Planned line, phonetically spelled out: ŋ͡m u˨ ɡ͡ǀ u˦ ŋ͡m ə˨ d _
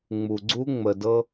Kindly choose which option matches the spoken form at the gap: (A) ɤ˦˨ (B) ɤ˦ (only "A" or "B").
B